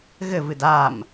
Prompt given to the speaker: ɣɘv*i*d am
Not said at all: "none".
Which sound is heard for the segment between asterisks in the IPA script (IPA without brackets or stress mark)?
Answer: ɨ